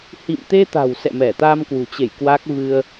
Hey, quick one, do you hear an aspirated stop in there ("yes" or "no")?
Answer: no